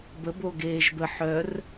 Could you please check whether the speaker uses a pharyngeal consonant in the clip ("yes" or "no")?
yes